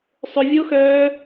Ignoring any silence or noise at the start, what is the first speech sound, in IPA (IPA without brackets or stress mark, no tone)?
sˤ